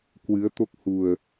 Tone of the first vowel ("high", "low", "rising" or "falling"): rising